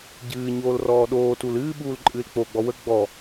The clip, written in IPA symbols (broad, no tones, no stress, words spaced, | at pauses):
ɟɨːɲoːl rɔːɗoːtul ɨːɓuːl ǃʼɨːlk͡poɡ͡bɔ wə ɡ͡bɔ